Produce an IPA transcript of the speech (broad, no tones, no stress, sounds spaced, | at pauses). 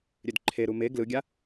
ɾʲ ø d ǃʰ e ɾ u m e ɡ l ɯ ɡʲ a